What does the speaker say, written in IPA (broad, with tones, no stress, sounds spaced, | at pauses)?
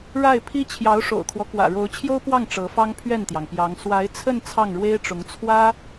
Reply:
ɻ a˥˩ ɪ̯ pʰ i˥ t͡ɕʰ j ɑ˧˥ ʊ̯ ʂ o̰˨˩ ʊ̯ kʰ w ɔ˦ k w ä̰˨˩ ɻ o˧˥ ʊ̯ t͡ɕʰ j o˥ ʊ̯ p w ɑ˥˩ ŋ ʈ͡ʂ ɤ˧˥ f ɑ˥ ŋ pʰ ɥ ɛ˥˩ n t̪ j ɑ˩ ŋ p j ɑ˧˥ ŋ s w a˧˥ ɪ̯ t͡sʰ ə˥˧ n t͡sʰ ɑ˥˩ ŋ ɻ w e˥ ɪ̯ ʈ͡ʂ ʊ˧˥ ŋ t͡sʰ w ä˥